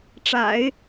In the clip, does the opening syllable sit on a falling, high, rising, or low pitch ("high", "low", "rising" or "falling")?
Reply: low